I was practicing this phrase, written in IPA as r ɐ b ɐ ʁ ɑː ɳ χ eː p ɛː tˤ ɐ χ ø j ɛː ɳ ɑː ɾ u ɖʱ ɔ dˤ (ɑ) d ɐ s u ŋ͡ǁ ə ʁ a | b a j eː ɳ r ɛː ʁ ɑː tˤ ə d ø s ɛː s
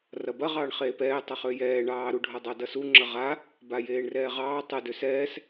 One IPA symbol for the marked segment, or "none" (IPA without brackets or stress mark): ɑ